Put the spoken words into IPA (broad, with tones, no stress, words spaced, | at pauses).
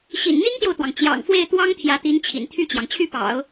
ɕḭ˨˩n n̪i˥ŋt̪jo˨ʊ̯t̪wɑ˩ŋ t͡ɕjɑ̰˨˩ŋfwe˥˩ɪ̯t̪wɑ˥ŋ t̪ʰjä˧˥t̪i˧˥nt͡ɕʰḭ˨˩n t̪ʰy˥˩t͡ɕjɑ˩ŋ t͡ɕʰy˥˩pɑ̰˨˩˦ʊ̯